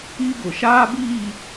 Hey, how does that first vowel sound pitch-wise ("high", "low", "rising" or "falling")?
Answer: high